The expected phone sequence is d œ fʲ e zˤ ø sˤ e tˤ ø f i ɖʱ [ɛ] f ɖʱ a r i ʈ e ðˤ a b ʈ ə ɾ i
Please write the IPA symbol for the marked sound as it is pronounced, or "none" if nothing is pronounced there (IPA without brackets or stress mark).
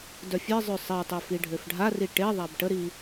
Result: ø